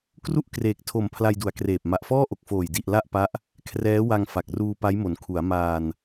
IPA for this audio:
k r u˥˩ ʔ k r eː˨˩ k̚ tʰ o˨˩ m pʰ l a˧ j d u˩˦ a̯ k r eː˨˩ p̚ m a˨˩ ʔ f ɔː˥˩ ʔ o˨˩ k̚ f oː˨˩ j d i˨˩ ʔ l a˥˩ ʔ p a˦˥ ʔ | kʰ r ɛː˦˥ w a˧ ŋ f a˨˩ k̚ r uː˧ p a˦˥ j m o˩˦ n kʰ u˩˦ a̯ m aː˧ n

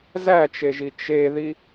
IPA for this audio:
z æ t͡ʃ e ʒ i t͡ʃ e ð i

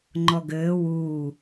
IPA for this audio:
ŋ͡ǃ ɔ ɡ ɘː w uː

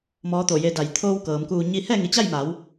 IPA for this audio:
m ɔː˧˥ t̪ o˧˩ j e˧ d a˧˩ j t̪ʰ oː˧ w k ɤː˩˧ m k uː˧ ɲ i˥˨ h ɛː˥˨ ŋ i˩˧ t͡ɕ a˥˨ j m a˩˧ w

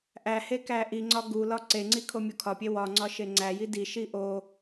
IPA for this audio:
ʔ æ h e k æ ʔ i ŋ͡ǀ ɒ ɡ u l ɒ ǀ e ŋ͡ǀ i kʰ o mʲ u kʰ ɒ pʲ e w ɒ ŋ͡ǀ ɒ ʃ e ŋ͡ǀ æ j i d i ʃ i ʔ o

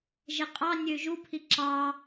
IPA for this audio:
ʒ ɛ qʼ ɑ nʲ ø ʒ u pʰ i ǁ ɑ

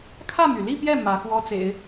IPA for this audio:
kʰ ä˥˩ m y˩ l i˥˧ p j ɛ˥˩ m ä˧˥ x w ɔ˥ t͡s ḛ˨˩˦ ɪ̯

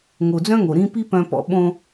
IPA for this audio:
ŋ o˨ d͡z œ̃˦ ŋ o˨ ɾ ĩ˦ p i˦ p œ̃˦ p ɔ̰˦ ɓ õ˦

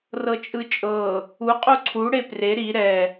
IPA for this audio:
r ɤ t͡ʃʼ ɯ t͡ʃʼ ɤ | u qʼ u ǀʰ u ɽ e p r e ɾ i ɾ ɛ

